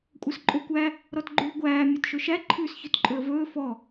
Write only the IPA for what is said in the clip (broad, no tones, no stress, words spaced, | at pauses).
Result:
kʷʼœsǃʼokʷæ | ɾɔtɡ͡ǃʉːɡʷæː mʲœtʃɵʃæ ǃʰʉːsçɵtǃʼɵə̯vɵː fɔ